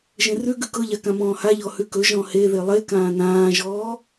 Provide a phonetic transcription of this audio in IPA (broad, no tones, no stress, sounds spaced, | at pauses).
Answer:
ʒ ẽ r ʉ ɡ ʉ k ɤ ʎ a k ã m ɔ̃ː h a ʎ ɔ h ʉ k ɵ ʒ ɔ̃ h e ð e lˠ e k ãː n ãː ʒ ɔː